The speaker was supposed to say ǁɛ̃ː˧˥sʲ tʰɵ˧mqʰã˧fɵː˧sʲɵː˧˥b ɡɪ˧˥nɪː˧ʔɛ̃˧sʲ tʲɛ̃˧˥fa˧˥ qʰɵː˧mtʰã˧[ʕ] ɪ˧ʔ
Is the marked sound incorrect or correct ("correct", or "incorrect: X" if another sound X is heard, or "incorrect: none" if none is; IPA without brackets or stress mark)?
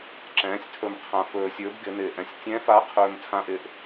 incorrect: ʔ